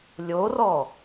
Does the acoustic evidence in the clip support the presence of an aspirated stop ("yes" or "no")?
no